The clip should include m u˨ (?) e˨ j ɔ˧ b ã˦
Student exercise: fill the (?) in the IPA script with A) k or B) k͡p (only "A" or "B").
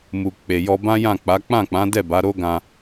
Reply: B